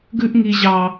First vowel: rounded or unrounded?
rounded